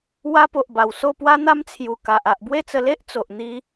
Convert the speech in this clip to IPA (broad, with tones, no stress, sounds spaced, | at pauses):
w a˦ p o˨ ʔ b a˨˩ w s o˥˧ p w a˦ n̪ a˦ m t͡sʰ j u˨˩ k a˨ ʔ a˨ ʔ b w e˥˧ t͡s ə˧ l e˦ ʔ t͡s o˨ ʔ n̪ i˧